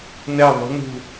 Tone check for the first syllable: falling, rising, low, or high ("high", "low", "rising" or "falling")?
falling